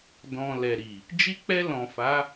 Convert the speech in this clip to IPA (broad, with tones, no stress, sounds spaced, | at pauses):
d ɔ̃˨ l ɛ˨ ɾ i˨ | d͡ʒ i˧ k͡p ɛ˧ l ɔ̃˨ f a˨˦